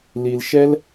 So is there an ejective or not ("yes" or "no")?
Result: no